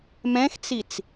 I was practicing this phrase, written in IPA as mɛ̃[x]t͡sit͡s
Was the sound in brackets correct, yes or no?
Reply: yes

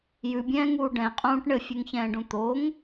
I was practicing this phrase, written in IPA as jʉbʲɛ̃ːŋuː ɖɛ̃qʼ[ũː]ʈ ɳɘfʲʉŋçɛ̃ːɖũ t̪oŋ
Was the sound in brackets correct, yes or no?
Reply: yes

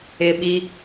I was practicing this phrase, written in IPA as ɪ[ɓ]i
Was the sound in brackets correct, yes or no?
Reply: yes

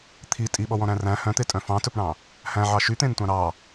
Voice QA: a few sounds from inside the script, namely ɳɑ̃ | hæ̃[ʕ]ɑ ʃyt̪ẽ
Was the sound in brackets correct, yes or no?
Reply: yes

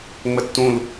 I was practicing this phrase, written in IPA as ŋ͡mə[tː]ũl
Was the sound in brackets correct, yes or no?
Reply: yes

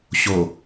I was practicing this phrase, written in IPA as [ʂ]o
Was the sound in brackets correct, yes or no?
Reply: no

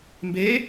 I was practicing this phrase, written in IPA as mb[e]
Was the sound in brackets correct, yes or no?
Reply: yes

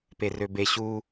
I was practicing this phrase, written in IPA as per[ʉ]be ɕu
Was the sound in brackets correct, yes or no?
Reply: no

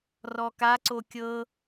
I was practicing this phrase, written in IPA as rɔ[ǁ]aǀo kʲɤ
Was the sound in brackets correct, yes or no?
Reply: no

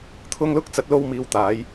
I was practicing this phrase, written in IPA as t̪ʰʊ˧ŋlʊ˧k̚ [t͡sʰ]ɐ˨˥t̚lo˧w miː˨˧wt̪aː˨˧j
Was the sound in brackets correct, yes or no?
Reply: no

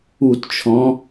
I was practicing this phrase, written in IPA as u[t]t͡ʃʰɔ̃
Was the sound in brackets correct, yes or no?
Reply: yes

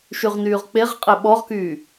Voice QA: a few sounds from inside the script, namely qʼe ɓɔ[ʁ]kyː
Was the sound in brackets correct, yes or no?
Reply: yes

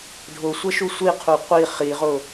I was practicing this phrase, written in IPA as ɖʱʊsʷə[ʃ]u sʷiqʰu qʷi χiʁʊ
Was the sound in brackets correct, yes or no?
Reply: yes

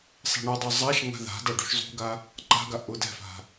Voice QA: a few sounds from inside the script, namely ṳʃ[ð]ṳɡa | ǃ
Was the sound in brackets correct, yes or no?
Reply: no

